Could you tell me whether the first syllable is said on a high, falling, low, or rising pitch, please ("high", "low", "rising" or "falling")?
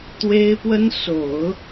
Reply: high